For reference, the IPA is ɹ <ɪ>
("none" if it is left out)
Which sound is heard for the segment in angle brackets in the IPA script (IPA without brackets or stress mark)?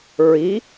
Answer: i